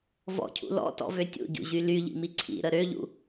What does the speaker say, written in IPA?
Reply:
v ɔ̰ cʰ ṵ l ɔ̰ t ɔ̰ v ø tʲ ṵ ɟ ṵ ʑ y l y ʎ ḭ m i ǀʰ ḭ ɾ ə ɾ ø ʎ ṵ

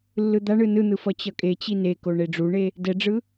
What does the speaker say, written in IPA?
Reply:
lː ɯ d̪ a ɳ ɯ n ɯ n̪ ɯ f ʌ t͡ɕ ʌ kʼ e t͡ɕ i n e k o ɳ e ɖ͡ʐ u ɳ e | d ɛ ɖ͡ʐ ɯ

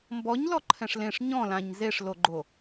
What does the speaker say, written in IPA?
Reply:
m b ɔ ɲ l ɔ ǃʰ ɛ̃ ʂ l ẽ ʂ ɲ ɔ̃ l ã ɲ z e ʂ l o ɡ͡ǃ o

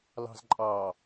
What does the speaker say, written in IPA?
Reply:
l ɑ̤ z ǃʼ ɑ

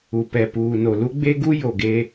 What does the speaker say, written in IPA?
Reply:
u˨ p ɛ˨ p uː˨ n o˨ l u˦ ɡ͡b e˦ ɡ u˦ j o˨ ɡ e˦

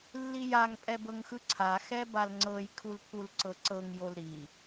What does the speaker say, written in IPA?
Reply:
lː i j a ŋ pʼ ɛ b ɤ ŋ x ɯ ǀʰ a x ɛ b a l ŋ͡ǀ ɤ j kʰ u l pʰ u l ǀ ɤ ǀ ɤ ŋ j o l ɾ i

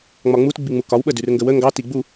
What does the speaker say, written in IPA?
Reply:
ŋ͡m ɒ ŋ͡m u t ɡ͡b i ŋ͡m u k ɒ w ɓ ə d ʉ r ŋ ɡ ə w ə ŋ ɡ ɑ t i ɡ͡b u

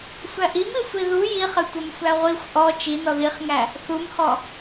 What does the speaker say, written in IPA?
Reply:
sʷ æ ʔ i m i sʷ i ð u j i χ ɘ tʷ ɘ m sʷ æ ʁʷ i xʷ ʔ ɔ t͡ʃ i n ɔ ð i χ ŋ æ | θ u m h ɔ

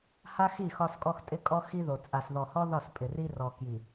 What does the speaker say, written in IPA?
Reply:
h a˦ x i˦˨ x ɒ˦ s kʼ ɔ˦ x tʼ ɪ˦ kʼ ɔ˦ x i˦ ð o˨ t͡sʼ a˨ s ð ɔ˨ h ɔ˦ ð ɒ˦˨ s pʼ ɪ˨ r i˦ r ɔ˨ k j i˨

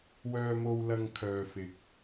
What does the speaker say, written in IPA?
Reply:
w œː˧ m o˧ w l ɐ˧ ŋ kʰ œː˧ f ɪ˧ k̚

